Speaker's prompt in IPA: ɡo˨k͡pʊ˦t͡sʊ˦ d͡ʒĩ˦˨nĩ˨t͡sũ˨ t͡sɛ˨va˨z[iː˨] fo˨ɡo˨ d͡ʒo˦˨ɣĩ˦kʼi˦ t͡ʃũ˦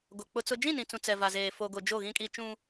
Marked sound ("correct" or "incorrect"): incorrect